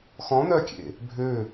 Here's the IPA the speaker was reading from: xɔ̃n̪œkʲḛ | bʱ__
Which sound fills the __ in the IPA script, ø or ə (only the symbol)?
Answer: ø